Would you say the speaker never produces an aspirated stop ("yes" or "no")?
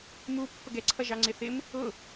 no